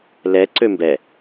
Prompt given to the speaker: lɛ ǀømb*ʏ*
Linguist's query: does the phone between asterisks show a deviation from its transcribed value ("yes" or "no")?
yes